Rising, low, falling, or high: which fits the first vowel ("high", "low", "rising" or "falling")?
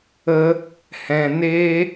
high